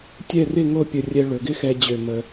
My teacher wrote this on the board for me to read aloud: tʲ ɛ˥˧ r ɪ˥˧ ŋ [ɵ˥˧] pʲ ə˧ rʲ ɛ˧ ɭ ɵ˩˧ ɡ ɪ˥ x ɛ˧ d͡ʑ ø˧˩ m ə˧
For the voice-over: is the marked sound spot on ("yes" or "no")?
no